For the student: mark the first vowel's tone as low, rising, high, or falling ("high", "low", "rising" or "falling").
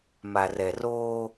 low